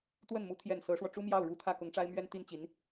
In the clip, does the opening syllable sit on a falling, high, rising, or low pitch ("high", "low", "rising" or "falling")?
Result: falling